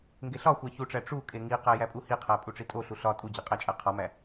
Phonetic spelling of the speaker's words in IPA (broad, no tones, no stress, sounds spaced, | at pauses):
ŋ ɡ e ɬ ɒ xʷ æ ç u ʈ͡ʂ æ ʈ͡ʂ u kʼ e ŋ i q æ j æ pʼ u h i qʰ æ pʼ u ʈ͡ʂ i tʼ o ɬ u ɬ ɒ tʼ u d͡ʑ e qʼ æ t͡ʃʼ æ qʰ ɒ m æ